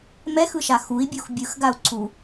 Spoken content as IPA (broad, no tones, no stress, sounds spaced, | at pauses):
m ɛ x ɯ ʃ a x u i̯ bʲ u x bʲ ɯ x ɡ a u̯ ǀʰ u